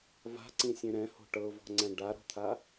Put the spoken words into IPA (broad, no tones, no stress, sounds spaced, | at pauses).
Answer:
v a̤ ǀ ĩ sʲ ẽ ɾ ɛ̃ h o̤ ʈ ɤ v ɔ̤ ŋ͡ǀ ɛ̃ ɖ a ɾ ɔ̤ t̪ʰ a